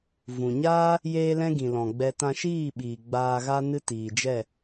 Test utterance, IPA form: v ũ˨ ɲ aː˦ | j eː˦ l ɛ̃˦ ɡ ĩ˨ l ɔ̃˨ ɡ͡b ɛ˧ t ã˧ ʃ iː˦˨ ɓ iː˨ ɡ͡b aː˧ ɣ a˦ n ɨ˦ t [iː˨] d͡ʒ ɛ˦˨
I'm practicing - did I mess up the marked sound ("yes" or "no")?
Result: no